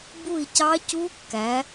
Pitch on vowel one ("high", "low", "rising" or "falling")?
falling